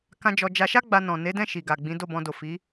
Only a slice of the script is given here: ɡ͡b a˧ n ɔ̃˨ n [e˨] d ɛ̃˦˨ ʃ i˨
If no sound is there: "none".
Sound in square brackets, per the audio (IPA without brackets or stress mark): e˨˦